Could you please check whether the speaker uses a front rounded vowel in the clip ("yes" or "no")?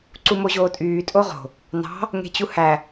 yes